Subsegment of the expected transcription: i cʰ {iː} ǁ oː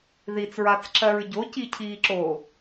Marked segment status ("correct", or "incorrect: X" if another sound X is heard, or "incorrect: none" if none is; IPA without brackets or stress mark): correct